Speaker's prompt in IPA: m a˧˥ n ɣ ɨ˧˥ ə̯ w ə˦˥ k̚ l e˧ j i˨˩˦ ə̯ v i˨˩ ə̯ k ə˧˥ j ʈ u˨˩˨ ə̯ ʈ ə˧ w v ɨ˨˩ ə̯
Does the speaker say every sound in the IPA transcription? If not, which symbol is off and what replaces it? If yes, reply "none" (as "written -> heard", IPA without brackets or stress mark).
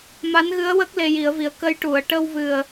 none